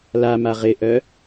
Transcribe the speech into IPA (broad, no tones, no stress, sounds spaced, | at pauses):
l a m a ʁ ɪ ʔ œ